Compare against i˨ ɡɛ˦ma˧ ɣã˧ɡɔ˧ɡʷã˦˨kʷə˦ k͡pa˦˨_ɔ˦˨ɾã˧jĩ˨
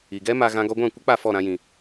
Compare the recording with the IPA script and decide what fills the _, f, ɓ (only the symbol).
f